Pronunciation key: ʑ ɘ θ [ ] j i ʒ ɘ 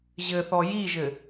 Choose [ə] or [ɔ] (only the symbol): ɔ